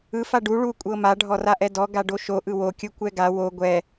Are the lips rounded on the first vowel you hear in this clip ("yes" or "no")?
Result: no